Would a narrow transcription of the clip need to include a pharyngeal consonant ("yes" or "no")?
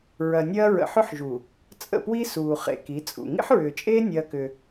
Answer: yes